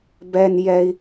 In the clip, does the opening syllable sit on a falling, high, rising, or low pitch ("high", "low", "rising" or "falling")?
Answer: high